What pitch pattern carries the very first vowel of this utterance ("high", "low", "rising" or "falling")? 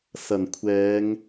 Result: low